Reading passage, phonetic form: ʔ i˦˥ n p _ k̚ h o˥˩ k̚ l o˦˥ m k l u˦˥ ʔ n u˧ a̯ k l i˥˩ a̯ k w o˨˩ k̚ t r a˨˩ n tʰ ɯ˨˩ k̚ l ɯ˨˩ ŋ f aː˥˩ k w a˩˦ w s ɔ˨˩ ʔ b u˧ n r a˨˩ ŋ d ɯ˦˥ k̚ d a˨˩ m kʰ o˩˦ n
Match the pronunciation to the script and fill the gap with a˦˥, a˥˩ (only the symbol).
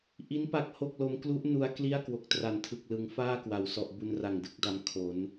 a˦˥